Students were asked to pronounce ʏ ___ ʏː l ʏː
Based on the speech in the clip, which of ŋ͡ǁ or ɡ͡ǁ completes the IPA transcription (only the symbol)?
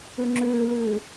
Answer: ŋ͡ǁ